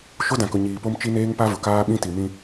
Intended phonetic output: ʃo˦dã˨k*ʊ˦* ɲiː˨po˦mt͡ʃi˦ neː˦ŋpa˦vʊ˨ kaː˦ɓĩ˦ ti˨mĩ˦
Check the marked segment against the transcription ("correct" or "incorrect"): incorrect